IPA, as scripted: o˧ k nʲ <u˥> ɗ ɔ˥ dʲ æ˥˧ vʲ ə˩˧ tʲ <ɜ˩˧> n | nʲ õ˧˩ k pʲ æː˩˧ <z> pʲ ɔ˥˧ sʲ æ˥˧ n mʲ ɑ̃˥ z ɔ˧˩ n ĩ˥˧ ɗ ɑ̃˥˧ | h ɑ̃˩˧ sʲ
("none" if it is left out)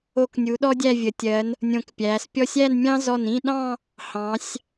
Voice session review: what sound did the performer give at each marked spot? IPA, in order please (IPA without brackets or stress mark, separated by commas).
u˩˧, ɜ˩˧, s